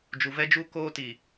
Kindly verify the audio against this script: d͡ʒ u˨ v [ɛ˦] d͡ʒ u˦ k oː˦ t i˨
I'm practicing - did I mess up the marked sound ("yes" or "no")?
no